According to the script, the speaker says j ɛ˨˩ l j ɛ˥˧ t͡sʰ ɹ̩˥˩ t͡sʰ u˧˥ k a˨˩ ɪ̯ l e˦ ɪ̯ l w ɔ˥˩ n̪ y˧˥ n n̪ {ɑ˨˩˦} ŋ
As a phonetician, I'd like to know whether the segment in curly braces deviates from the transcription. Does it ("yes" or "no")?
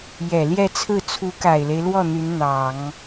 no